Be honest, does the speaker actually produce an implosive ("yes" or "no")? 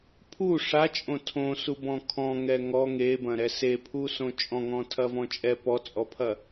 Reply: no